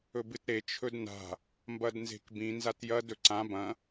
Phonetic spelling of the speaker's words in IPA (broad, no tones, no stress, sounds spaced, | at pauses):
ɵ b ɨ t ɾ e t͡ʃʰ ɵ d n a̤ | m b ɐ d n z e̤ k b ĩ n z a t j ɐ d ɵ ǀ ã b ɐ̃